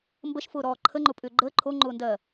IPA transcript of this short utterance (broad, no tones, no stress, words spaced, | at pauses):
mbəʃfʊːɾɔː ǃʰəŋ͡ǃʊpʼʏː ɡ͡ǃəː ǃʰoŋ͡ǃʊːndɜː